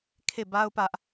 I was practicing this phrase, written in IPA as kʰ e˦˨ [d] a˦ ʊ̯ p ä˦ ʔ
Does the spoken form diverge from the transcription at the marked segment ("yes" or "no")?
yes